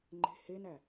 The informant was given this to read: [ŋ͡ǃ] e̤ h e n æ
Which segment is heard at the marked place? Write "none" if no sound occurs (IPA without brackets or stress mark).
ŋ͡ǃ